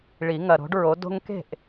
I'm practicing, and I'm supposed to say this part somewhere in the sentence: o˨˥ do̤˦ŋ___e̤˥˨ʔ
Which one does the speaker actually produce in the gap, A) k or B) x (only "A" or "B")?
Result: A